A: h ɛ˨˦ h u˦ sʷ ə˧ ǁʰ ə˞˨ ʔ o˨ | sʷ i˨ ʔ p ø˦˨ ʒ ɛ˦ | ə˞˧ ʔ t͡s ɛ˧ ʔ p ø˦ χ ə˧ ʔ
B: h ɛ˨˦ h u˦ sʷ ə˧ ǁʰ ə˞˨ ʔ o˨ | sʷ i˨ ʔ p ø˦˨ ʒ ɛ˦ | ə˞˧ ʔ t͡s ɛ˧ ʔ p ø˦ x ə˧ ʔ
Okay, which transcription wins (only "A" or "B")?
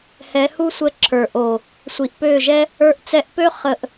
A